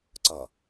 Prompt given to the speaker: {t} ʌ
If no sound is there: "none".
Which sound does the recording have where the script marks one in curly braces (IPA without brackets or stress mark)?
ǀ